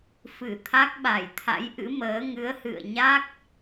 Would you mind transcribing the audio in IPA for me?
fɨ˧˩t̪ʰa˦˥k̚ ɓa˧˩jt̪ʰa̰˧˥jʔɨ̰˧˥məː˨˦ ŋɨ˨˦ə̯hɨ̰˧˨ə̯ɲa˦˥k̚

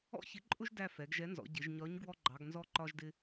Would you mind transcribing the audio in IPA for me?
ɔ̰˦çɪ˨˥ǃʼʊ˦ʒ dæ˦˨fɛ˩˧ɡʒɛ˨˥nzɔ̰˩˧ ɟɪ˩˧ʒɲɒ˨˥ɲ ɡwɔ˦ɡ͡ǃɑ˩˧ɡ nzɔ˦ǃɒ˦ʒdɪ˦

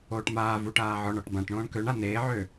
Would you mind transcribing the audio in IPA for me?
oːʈmaːvuːʈ aːʕɔɳɔʈ bãʈ ɳõːɳkøɳa neːʕø

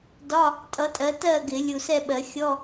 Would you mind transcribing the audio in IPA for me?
dɒ˧˥˧ | tʼʌ˨˥tʼɜ˨˥ tɜ˥˨ɡɪ˨˩˦ lʲu˨sɛ˥˨ɓɜ˨˩˦ xʲɔ˧˥˧

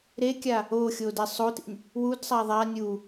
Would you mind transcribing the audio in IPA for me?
ɾekʲa | oxʲo dɛsˤotḭnʲ | wudsˤa ðˤa nʲu

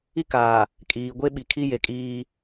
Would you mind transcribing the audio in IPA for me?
i˦kaː˨ | kʼiː˨ ɡʷe˦ɓi˨kʰi˦ je˨kʼiː˦

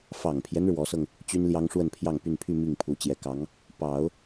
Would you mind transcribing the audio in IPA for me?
fɑ˨˩ŋpʰjɛ˦n ɻwɔ˧˥sɤ˧ŋ | t͡ɕy˥nljɑ˥ŋʂwə˥˧npʰjɑ˥˧ŋ py˥˧npʰy˥˧ mi˥˩ŋpʰu˧˥ t͡ɕjɛ˧˥kɑ˧˥ŋ | pɑ˨˩˦ʊ̯

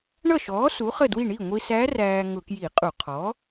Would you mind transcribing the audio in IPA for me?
ɳʌ˥˩ʃɔː˩˥ su˩˥χə˥˩dwi˥˩ ɳi˥˩ŋʷi˧sæ˧˥ ræː˧ ŋʊ˧˩˧kji˧˩˧qʼu˧˩˧ qʰɔ˩˥

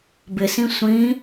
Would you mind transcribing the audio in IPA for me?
bɪsĩ sʷĩ

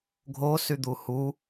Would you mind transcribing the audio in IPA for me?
ɡʱosyd̪u hu

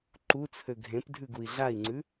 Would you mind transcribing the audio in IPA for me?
ǃut͡sʰø ɡʱẽp dʱʉɡui̯ɮai̯ŋ͡ǀʉ

